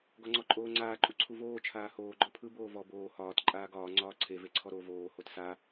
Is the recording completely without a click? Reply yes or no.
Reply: no